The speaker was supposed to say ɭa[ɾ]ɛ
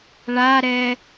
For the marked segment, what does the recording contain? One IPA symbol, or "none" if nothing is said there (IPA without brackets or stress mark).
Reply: ɾ